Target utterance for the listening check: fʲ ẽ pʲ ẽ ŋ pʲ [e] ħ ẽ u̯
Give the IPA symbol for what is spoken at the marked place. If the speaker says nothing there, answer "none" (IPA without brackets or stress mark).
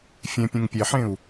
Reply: e